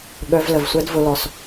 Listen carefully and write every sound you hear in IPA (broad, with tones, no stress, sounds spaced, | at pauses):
ɠ œ˧ v l ə˨ v sʷ ɛ˦ d v ʊ˧ l ɔ˨ s